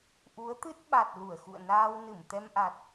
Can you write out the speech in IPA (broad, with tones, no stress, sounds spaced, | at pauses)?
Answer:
ʔ u˨˦ ə̯ t̪ ɨ˦˥ t̚ ɓ a˨˩ t̚ l u˧˩ ə̯ x ṵ˧˨ ə̯ n aː˧ w n ɨ˧˩ m t̪ ɛ˧ m ʔ a˨˩ t̚